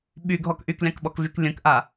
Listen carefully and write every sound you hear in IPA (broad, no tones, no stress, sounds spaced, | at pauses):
ɓ y ɡʱ ɔ k ʔ y k lʲ ɑ̃ k ɓ ɔ k v y k lʲ ə̃ k ʔ a